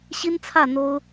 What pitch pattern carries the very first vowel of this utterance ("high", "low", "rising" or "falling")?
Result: high